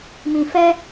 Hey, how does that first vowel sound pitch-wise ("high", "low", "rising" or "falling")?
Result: low